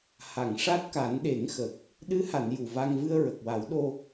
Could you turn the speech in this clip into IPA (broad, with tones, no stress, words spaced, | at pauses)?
ha˨˩˨ŋʂa˦˥t̚ ka˨˩˦nɗe˨˩˦ŋxə˨˩k̚ | ɗɨ˧˥ha˨˩˨n ju˨˩va˧ŋ vɨ˧ə̯ɹə˨˩k̚wa˨˩˦w ɗo˧